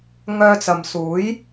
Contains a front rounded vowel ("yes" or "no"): yes